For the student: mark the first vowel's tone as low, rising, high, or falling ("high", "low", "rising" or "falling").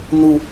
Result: high